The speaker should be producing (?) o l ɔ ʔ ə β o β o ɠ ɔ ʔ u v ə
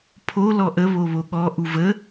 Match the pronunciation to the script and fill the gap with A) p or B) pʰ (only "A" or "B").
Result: B